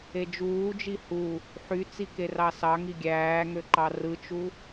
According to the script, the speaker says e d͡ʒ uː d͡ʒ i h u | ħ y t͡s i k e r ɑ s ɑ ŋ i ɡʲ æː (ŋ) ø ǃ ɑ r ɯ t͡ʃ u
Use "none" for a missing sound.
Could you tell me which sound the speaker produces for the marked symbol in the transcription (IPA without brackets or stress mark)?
ŋ